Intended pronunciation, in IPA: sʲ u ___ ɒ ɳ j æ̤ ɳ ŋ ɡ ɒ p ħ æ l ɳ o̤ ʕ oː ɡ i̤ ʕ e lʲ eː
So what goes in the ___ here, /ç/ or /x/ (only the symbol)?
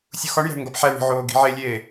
x